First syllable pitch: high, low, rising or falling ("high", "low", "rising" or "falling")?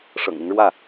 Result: low